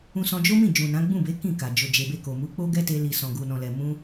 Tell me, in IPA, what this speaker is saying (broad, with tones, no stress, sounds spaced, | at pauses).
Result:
ũ˧ s ɔ̃˧ d͡ʒ o˦ m ĩ˦˨ d͡ʒ ũ˨ n ã˨˦ ɡ͡b ũ˦˨ b e˨˦ k ĩ˦˨ k a˨ d͡ʒ o˨ d͡ʒ e˨ b e˧ k o˨ m u˨˦ k͡p o˦ ɡ ɛ˦ t e˧ l i˨ s ɔ̃˨ ɡ u˨ n ɔ̃˨ l ɛ˨ m ũ˧